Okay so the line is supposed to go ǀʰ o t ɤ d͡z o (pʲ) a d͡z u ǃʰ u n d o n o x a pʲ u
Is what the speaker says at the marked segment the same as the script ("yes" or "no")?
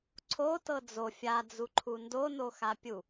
no